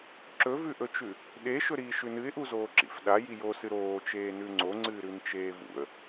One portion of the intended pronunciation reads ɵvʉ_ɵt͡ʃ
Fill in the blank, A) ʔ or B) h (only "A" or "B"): A